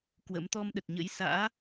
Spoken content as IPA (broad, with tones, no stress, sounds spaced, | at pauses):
k w ə̰˧˥ m t̪ ɔ˧ m ɗ ə˨˩ t̚ ɲ ə̰˧˥ j s a̰ː˧˥